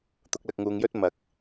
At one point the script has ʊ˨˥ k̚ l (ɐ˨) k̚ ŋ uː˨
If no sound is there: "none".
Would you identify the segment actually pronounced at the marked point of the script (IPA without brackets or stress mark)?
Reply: ɐ˨